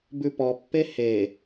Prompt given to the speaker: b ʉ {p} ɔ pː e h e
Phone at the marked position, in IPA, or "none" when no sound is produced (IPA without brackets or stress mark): p